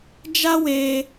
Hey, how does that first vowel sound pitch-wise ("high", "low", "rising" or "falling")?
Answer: high